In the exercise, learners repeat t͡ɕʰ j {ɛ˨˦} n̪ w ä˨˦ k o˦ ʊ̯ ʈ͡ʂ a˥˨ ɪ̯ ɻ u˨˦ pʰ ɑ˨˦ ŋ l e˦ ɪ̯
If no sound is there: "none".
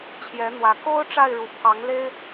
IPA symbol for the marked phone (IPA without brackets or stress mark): ɛ˨˦